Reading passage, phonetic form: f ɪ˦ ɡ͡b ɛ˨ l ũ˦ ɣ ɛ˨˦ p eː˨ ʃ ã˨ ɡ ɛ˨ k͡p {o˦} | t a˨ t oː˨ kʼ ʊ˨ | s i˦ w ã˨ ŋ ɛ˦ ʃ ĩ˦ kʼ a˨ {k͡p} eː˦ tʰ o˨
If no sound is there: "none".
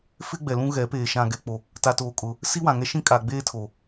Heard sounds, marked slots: o˨, ɡ͡b

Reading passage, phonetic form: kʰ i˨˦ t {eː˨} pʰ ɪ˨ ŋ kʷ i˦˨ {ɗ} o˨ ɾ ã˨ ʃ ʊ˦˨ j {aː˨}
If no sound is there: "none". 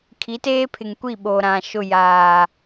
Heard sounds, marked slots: eː˦, ɓ, aː˨

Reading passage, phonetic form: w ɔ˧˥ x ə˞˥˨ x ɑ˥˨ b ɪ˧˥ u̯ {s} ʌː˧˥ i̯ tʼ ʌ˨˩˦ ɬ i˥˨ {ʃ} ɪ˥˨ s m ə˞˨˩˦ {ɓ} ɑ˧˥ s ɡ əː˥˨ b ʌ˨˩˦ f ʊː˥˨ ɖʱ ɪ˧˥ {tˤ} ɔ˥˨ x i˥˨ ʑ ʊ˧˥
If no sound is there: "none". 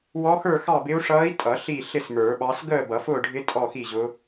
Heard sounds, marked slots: ʂ, ɬ, ɓ, tʼ

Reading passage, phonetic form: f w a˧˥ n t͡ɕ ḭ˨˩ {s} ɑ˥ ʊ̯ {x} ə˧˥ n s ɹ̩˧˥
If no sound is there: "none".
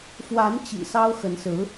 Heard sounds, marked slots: s, x

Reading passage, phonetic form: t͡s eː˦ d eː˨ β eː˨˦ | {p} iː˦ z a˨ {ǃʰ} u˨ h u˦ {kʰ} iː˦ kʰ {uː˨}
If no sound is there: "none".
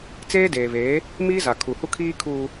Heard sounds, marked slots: m, kʰ, kʰ, uː˦

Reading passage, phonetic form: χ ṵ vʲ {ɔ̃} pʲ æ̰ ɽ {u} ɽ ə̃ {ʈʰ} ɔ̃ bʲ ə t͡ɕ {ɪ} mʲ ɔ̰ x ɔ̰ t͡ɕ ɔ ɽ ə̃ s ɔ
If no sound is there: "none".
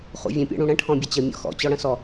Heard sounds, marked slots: ə̃, ũ, ʈʰ, ə

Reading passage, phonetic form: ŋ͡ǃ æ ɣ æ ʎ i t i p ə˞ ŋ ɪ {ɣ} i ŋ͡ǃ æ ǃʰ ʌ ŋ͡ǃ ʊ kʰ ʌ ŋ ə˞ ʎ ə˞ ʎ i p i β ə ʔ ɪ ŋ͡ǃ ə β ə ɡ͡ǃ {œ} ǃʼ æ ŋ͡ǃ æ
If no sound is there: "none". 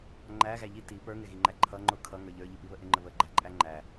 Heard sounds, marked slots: ɣ, æ

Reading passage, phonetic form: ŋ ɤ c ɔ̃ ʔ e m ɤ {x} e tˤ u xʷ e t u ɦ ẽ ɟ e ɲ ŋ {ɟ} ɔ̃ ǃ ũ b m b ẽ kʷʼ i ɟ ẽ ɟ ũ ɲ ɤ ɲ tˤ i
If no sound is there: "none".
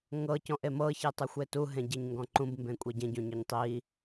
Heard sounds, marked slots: ç, ɡ

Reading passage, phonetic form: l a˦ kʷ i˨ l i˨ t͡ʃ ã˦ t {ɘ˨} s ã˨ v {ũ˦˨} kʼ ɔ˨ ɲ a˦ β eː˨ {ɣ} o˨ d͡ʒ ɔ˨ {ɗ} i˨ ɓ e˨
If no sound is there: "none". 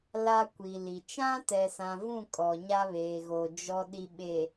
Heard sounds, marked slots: ɛ˨, ũ˦˨, ɣ, ɗ

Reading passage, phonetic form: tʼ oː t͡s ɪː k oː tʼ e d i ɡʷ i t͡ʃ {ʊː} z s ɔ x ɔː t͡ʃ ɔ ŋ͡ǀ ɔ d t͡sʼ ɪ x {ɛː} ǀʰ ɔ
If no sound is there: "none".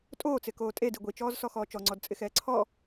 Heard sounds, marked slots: ɔː, ɛː

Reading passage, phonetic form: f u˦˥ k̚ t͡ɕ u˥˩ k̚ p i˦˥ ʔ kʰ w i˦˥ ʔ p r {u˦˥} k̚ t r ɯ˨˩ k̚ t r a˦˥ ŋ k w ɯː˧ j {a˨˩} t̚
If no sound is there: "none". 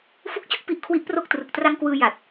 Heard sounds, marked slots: o˦˥, a˨˩

